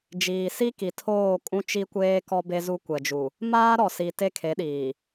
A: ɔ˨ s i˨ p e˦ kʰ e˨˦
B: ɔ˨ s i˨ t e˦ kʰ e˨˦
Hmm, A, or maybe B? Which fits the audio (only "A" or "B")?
B